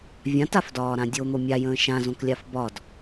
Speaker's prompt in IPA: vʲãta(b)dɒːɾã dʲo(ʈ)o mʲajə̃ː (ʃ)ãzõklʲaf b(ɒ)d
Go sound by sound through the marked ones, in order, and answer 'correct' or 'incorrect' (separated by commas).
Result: incorrect, incorrect, correct, correct